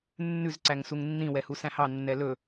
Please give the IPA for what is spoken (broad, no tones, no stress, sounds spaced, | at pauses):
nː ʉ z ǀ æ ŋ s u ŋ nː ĩ w ɛ h u s æ̃ h ɑ nː ɛ l ɵ